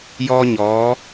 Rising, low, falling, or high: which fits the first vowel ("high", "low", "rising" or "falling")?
high